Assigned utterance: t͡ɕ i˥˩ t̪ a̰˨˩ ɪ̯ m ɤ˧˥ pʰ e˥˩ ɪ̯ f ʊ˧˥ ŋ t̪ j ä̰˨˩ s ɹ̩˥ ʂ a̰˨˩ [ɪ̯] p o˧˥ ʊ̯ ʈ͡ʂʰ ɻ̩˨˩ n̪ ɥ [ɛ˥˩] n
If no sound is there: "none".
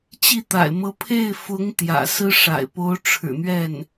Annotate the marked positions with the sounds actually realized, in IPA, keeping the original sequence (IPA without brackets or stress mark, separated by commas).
ɪ̯, ɛ˥˩